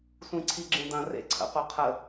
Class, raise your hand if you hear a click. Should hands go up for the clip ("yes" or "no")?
yes